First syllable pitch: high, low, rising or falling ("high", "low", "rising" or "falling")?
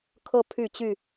high